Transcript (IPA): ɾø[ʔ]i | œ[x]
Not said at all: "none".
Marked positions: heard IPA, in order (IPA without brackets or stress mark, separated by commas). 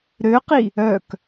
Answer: q, k